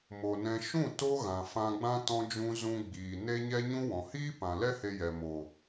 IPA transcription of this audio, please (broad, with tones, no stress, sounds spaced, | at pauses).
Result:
m o˨ n ɛ̃˧ ʃ ũ˦˨ t o˦ ɣ ã˨ f ã˧ ɡ͡b ã˦ t ɔ̃˦ d͡ʒ ũ˦ z ũ˧ ɡ͡b iː˨ n e˦ ɲ ɛ˦ ɲ ũ˦ w ɔ̃˨ h iː˦ p ã˨ l ɛ˦ h e˧ j ɛ˨ m o˨